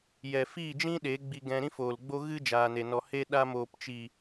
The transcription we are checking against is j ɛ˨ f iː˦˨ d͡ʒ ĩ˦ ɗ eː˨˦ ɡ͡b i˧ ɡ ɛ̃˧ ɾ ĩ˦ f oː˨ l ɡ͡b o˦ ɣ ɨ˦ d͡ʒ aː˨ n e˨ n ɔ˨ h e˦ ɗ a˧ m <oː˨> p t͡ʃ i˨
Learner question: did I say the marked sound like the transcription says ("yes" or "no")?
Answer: yes